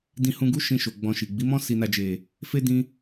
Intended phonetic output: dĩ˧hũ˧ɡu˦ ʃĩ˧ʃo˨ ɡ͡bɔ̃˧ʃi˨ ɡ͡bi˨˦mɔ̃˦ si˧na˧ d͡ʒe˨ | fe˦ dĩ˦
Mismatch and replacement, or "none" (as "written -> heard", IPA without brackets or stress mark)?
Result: none